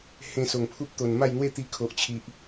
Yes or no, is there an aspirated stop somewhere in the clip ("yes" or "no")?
yes